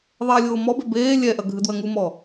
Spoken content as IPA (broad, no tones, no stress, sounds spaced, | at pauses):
ðˤ eː lʲ oː m ɔ b e b eː lʲ ɛ ʔ ɐ ɡʱ ɨ d w ɐ ŋ u m ɔ